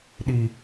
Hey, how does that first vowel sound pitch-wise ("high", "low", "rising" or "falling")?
high